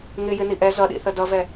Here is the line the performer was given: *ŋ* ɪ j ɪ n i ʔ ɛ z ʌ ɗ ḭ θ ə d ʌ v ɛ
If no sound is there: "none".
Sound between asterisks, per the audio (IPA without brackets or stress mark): ŋ